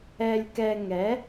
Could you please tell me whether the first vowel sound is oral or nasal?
oral